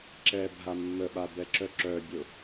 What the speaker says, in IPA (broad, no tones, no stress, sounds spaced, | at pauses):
ǁ ɛ bʱ a mː ə ɓ a b ɛ ǁ œ ǁ œ bʲ ʊ